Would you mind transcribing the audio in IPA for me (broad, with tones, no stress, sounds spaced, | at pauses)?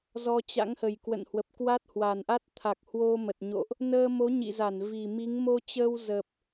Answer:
z ɔ˧ t͡ɕ a̰˧˥ ŋ h ə˨˩ j k w ə̰˧˨ n h w ə˨˩ p̚ k w a˦˥ t̚ h w a˨˩ n ʔ a˦˥ t̚ t̪ʰ a˨˩ k̚ h w o˧ m ə˨˩ t̚ ɲ o̰˧˨ ʔ | n əː˧ m o˨˦ ɲ ḭ˧˨ z a˧˩ n v i˨˩ m i˨˦ ŋ m o˧ t͡ɕ əː˧ w z ə˨˩ p̚